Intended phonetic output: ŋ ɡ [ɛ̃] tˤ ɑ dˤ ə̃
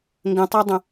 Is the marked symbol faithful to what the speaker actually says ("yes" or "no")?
no